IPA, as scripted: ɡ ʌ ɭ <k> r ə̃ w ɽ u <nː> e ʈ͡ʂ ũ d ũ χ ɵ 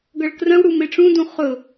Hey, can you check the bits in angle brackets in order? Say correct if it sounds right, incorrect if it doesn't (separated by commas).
correct, incorrect